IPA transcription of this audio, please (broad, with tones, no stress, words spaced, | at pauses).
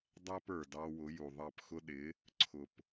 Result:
dˤæ˥pə˞˩ dɑ˧wʊ˩˥ ju˩ ðˤɑ˥˩pxʊ˥ ɗɪ˩˥ | ǀʰʊ˩p